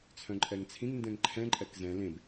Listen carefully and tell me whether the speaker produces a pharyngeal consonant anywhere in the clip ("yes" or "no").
no